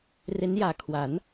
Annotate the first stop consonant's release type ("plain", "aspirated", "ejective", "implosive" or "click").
aspirated